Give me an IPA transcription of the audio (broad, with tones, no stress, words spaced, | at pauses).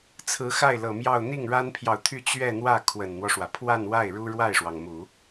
t͡sʰɹ̩˧˥xa˥˩ɪ̯lɤ˨˩mjɑ˥˧ʊ̯ n̪i˥˩ŋɻa˥npʰjɑ˨ʊ̯t̪ʰy˥˧ t͡ɕɥɛ˥˧n̪wä˥˩ kʰwə˨˩nn̪wɔ˦ʂwä˩ pʰwa˥˧nwa˥˩ɪ̯ ɻu˥ɻwa˥˩ɪ̯ʂwɑ˩ŋ mu˨˩˦